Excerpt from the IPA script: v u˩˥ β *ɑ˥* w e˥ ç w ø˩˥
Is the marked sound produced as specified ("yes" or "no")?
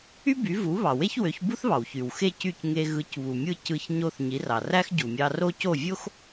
no